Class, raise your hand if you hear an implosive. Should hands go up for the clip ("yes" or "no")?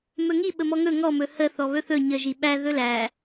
yes